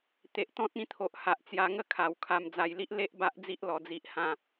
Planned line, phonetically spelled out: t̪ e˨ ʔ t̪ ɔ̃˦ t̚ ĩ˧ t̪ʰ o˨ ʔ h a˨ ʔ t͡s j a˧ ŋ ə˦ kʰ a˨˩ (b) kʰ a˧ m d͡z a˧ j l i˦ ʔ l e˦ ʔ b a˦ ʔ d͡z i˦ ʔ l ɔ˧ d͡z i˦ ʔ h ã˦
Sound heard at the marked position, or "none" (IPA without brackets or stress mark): w